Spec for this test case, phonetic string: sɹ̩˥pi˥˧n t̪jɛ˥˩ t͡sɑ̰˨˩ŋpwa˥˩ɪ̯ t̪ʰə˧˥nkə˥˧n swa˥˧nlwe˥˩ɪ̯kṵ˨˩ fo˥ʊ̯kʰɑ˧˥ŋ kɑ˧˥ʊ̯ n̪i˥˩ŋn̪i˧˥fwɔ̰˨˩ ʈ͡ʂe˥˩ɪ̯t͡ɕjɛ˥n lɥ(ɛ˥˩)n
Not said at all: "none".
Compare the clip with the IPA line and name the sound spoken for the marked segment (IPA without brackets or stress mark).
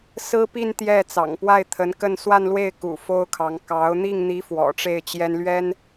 ɛ˥